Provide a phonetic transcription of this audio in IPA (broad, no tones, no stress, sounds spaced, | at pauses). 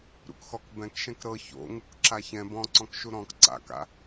ɾ ṵ k x ɔ k b ɛ̃ k ʃ ɛ̃ k ɾ ɤ ç o̰ ŋ u k ǁ a ç ɛ̃ b ɔ̃ ǀ ɔ̃ k ʃ u ɾ ɔ̃ k ǀ a̰ k a̰